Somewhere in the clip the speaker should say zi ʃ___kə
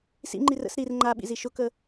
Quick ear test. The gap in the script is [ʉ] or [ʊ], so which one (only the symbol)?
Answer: ʊ